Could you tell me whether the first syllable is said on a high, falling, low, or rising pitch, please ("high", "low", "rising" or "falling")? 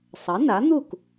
rising